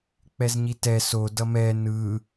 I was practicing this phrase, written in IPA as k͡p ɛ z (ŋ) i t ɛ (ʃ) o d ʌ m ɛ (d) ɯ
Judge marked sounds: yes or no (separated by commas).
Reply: no, no, no